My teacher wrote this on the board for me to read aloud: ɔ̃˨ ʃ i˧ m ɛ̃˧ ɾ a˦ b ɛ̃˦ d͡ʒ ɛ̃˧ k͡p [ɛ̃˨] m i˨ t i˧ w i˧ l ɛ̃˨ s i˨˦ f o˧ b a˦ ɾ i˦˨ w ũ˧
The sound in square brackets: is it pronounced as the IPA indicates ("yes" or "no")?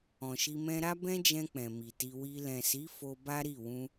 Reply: yes